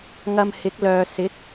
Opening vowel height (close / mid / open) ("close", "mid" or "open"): open